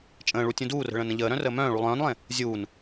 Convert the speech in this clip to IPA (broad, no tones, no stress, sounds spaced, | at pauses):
t͡ʃʼ ə̃ː ɭ u tʲ ũ d uː r ə̤ ɭ ə̃ː n ə̃ ʎ əː ɾ œ̃ r əː m œ̃ː ɭ u lˠ œ̃ː n lˠ ẽ | zʲ uː n